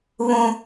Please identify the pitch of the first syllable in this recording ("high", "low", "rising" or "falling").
high